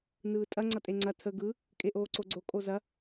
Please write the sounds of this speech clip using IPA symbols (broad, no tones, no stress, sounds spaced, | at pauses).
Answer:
n ɯː tʼ ɐ ŋ͡ǀ ʌ tʼ e ŋ͡ǀ ɐ tʰ ə ɡ ɯ | kʼ e ʔ oː ǀ o ɡ͡ǀ o kʼ o z ɐ